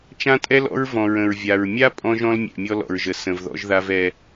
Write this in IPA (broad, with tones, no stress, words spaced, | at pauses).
t͡ʃã˦tʼɛ˦l ɔ̰˦ɹ vɔ̃˨ɹə̃˨ɹvʲa˨ɹ mʲa˦ pʼɔ̃˦ʒɔ̃˦l mʲɛ̰˨mʲɔ˦lɔ̰˨ɹʒə˨ sə̃˨vðɔ̰˦ʒða˦v ɛ˦